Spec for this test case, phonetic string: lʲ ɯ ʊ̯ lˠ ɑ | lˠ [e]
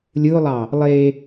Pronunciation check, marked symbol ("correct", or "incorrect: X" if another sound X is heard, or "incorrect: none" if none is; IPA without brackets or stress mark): correct